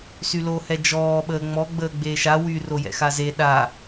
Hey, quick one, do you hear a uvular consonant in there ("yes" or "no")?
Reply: no